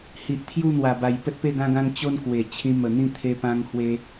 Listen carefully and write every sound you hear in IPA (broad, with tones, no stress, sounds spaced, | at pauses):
h i˨ ʔ t̪ʰ j u˥˧ n̪ w a˨˩ b a˨˩ j p ə˦ t̚ p e˥˧ ɡ ã˦ ɡ ã˦ ŋ t͡ɕ o˦ n k w e˨˩ t͡ɕʰ ĩ˧ m ə˨˩ n̪ ĩ˥˧ t̪ʰ e˧ p ã˧ ŋ h w e˧